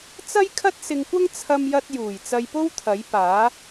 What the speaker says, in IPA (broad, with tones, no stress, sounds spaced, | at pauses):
t͡s ɐ˥ j kʰ ɐ˥ t̚ s ɪ˧ ŋ kʷ ɐ˥ ŋ t͡sʰ ɐ˧ m j ɐ˧ t̚ j uː˨˩ j t͡s ɐ˧ j p o˥ w t̪ʰ ɐ˨˥ j p aː˨˥